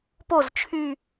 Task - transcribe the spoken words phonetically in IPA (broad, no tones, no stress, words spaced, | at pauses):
poz t͡ʃʰy